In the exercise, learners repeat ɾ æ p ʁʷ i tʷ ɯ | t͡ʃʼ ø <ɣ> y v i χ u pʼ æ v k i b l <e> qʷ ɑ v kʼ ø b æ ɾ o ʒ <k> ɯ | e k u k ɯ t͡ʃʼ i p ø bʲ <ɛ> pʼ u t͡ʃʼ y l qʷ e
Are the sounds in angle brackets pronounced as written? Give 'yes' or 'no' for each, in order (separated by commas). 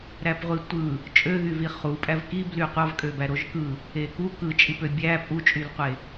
yes, no, yes, no